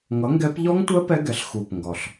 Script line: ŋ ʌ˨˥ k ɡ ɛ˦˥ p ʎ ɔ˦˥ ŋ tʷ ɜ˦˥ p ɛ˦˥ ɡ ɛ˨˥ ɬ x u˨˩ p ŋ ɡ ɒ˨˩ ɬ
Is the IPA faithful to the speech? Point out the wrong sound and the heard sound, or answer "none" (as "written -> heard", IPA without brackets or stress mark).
k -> ŋ